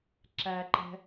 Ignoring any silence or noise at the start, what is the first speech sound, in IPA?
ǁ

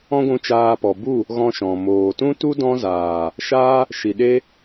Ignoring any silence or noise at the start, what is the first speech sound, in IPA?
ɔ̃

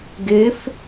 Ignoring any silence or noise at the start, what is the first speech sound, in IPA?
ɡ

